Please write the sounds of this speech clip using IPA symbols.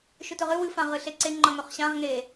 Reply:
ʃ ʏ t ɵ ʁ ɨ w ɨ f ã ʁ ɨ ɬ e ǀ e ŋ͡ǃ ʌ ŋ ɵ χ ɕ ã ʁ ŋ e

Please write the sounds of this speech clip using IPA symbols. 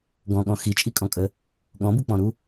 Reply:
ɡ ɔ̃ ɠ ɔ̃ x i t͡ʃʼ i kʼ ɔ̃ kʼ ə | ɠ ɔ̃ b u k͡p ɔ̃ ɾ u

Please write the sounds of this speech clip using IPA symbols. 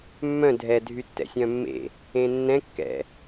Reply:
mː œ̃ dʱ ɛ dʱ y tː ɛ̰ sʲ œ̃ mː ḛ | ẽ nː ɛ̃ kː ɛ̰

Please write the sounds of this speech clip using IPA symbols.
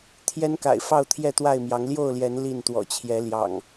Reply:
t̪ʰ j ɛ˦ n k a̰˨˩ ɪ̯ f ɑ˥˨ ʊ̯ t̪ʰ j ɛ˥˨ t̪ w a˥˨ ɪ̯ m j ɑ˨˦ ŋ l j o˥˨ ʊ̯ l j ɛ˨˦ n l i˥˨ n t̪ w ɔ̰˨˩ t͡ɕʰ j ɛ˨˦ l j ɑ̰˨˩ ŋ

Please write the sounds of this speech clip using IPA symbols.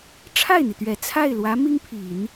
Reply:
ʈ͡ʂʰ a˥˩ ɪ̯ n̪ i˩ t̪ ɥ ɛ˨˩ t͡sʰ a˥˩ ɪ̯ l w ä˧˥ m i˥ ŋ pʰ i˨˩˦ n

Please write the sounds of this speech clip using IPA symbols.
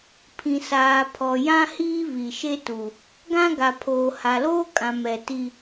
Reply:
pʰ ĩ˨ s aː˨ pʰ ɔ˨ j ã˦ h iː˦ β i˨ ʃ e˦ t u˨ | ɡ ã˦ ɡ a˨ pʰ oː˨ h a˨ l oː˦ kʼ ã˨ m ɛ˨ t i˦

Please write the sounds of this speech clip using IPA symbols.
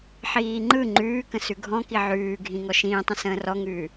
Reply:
ħ iː ŋ͡ǃ ɯ ŋ͡ǃ ʉː k ə̃ s ʉ ɡʱ ɔ̃ k i ʕ ʉː ɡʱ ĩ ŋ ɔ ʃ ĩː tˤ ə̃ s ə̃ː r ɔ ŋ ʉː

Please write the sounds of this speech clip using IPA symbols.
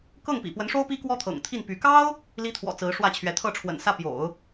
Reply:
k ɤ˥˩ ŋ p ḭ˨˩ p w ə˧˥ n ʂ o˥ ʊ̯ p i˥ k w ɔ˥ t̪ʰ ɤ̰˨˩ ŋ t̪ʰ i˥˩ n p y˧˥ k ɑ˥ ʊ̯ | l i˥ t̪ʰ w ɔ̰˨˩ t͡s ɹ̩˧˥ ʂ w ä˥˩ t͡ɕʰ ɥ ɛ˧˥ t̪ʰ ɤ˥˩ ʈ͡ʂʰ w ə̰˨˩ n s ä˥˩ p j o̰˨˩˦ ʊ̯

